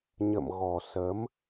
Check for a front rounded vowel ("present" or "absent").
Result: absent